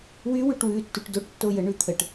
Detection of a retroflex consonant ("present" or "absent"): present